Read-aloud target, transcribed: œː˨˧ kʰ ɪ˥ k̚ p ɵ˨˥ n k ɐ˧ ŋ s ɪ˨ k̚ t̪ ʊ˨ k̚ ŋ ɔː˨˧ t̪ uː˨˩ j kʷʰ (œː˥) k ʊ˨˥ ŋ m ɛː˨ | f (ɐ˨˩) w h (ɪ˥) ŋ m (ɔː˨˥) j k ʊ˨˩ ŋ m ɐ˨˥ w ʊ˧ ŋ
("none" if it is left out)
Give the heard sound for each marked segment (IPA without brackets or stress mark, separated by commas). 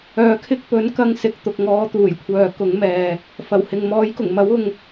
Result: œː˨, ɐ˨˩, ɪ˨, ɔː˨˥